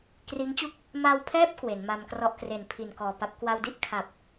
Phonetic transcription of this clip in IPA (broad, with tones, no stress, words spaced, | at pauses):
kriː˦˥ŋt͡ɕu˥˩k̚ | ma˧wpʰɛː˦˥p̚ kwe˩˦nma˧mkrɔ˦˥ʔ kre˨˩n pʰi˨˩n kɔː˨˩pa˦˥p̚ kwa˧wdi˥˩ʔ kʰa˨˩p̚